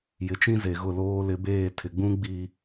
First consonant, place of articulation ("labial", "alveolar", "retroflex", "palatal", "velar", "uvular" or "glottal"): palatal